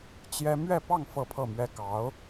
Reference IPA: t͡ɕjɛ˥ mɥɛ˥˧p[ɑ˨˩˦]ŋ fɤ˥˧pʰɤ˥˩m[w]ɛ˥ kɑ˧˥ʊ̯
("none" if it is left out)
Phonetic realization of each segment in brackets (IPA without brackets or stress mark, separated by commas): ɑ˥˧, ɥ